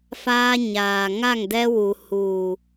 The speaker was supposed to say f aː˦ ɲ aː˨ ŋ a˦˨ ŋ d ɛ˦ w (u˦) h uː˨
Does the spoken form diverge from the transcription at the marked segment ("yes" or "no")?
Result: yes